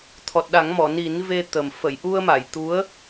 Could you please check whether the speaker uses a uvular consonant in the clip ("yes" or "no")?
no